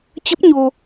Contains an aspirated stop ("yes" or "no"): no